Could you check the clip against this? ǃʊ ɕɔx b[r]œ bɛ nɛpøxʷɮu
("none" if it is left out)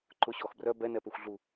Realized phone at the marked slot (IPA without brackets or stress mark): r